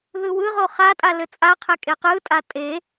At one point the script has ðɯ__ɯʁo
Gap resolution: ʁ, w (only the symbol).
w